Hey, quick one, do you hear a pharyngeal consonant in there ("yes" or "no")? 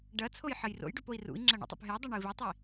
yes